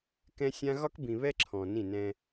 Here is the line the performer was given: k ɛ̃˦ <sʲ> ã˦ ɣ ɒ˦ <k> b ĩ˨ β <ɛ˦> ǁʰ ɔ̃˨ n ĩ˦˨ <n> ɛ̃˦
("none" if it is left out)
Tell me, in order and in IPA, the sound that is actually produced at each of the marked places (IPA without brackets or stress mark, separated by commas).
sʲ, k, ɛ˦, n